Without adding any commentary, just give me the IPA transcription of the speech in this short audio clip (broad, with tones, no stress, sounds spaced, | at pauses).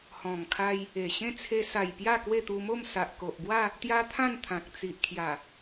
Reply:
h ɔ̃˨˩ ŋ kʰ a˧ j | e˨˩ ɕ ẽ˥˧ t͡sʰ e˧ s a˨˩ j p j a˥˧ k w e˥˧ t̪ u˧ m o˥˧ m s a˨ ʔ k o˨ ʔ b w a˥˧ | t̪ j a˦ t̪ʰ ã˥˧ n t̪ʰ ã˨ k̚ t͡s i˨ ʔ kʰ j a˨˩